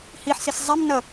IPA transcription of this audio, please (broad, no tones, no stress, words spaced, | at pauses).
hiħsis zˤem nʌ